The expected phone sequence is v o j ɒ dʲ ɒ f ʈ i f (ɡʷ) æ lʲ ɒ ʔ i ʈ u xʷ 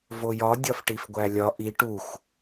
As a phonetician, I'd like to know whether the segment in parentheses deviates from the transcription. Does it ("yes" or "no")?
no